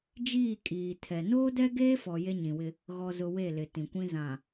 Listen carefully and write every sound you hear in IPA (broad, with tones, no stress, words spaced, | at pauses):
d͡ʒiː˦˨kʼiː˨tʰɛ˨ noː˦dɛ˦ɡeː˦fɔ˨ je˦ɲĩ˨wɪ˦ | ɣɔ˨zʊ˨ we˦˨lɪ˨ tĩ˨kʷĩ˦ zã˨